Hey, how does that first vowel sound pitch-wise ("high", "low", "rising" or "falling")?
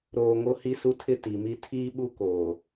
low